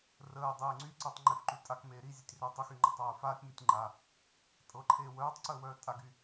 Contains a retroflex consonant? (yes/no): no